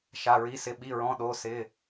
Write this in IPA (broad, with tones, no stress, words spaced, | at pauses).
ʃa˩˧˩ɹi˩˧˩sɪ˩˧˩ ɓi˩˧˩ɹɔ̃˩˧˩ ɗo˩˧˩sɪ˩˧˩